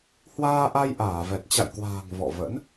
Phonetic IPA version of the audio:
hwaː˧ʔa˧jʔaː˧˩vɛ˨˩t̚ t͡ɕa̰˧˨jkwa̤ː˨˩ŋ vɔ̰˧˨və̰˧˥n

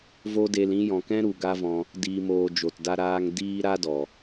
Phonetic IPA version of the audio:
vo˦de˧lĩ˦ jɔ̃˨kɛ̃˦ɾu˨ ɡa˦vɔ̃˧ | diː˨moː˨ d͡ʒo˨tda˧ ɾaː˧ŋ diː˦ ɾa˦dɔ˨

